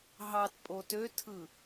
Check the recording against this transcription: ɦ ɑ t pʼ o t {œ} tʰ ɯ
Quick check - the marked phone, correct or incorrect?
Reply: incorrect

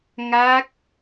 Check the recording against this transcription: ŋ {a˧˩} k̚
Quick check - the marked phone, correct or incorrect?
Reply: incorrect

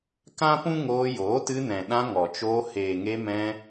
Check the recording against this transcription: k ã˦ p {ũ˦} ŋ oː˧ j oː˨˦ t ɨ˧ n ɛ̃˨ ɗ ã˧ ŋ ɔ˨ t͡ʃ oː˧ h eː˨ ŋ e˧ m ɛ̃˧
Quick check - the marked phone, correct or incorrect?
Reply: correct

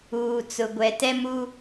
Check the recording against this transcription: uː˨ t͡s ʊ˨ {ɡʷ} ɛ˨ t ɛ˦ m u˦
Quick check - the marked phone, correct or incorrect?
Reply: correct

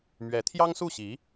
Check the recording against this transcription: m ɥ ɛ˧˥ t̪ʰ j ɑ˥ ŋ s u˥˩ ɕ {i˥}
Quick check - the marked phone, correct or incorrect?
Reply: incorrect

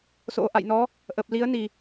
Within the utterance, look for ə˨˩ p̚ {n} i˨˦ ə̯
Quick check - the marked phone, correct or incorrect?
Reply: incorrect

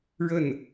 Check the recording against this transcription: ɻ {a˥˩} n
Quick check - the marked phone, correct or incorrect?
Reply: incorrect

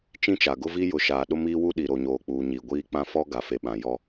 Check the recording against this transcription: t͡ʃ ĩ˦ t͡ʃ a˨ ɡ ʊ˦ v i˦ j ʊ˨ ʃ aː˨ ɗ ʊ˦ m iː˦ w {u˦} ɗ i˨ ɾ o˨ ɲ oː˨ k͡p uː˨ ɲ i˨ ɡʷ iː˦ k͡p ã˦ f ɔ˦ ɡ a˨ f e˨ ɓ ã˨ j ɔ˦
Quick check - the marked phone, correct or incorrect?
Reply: correct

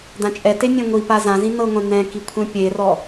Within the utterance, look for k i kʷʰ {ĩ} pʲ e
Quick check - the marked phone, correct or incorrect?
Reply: incorrect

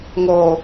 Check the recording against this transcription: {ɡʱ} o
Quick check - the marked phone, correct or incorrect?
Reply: incorrect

